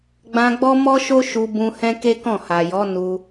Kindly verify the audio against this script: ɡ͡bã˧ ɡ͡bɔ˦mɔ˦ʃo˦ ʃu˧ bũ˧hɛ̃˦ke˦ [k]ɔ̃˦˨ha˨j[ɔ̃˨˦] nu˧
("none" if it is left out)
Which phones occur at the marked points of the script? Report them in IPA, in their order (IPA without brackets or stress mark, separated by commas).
k, ɔ˨˦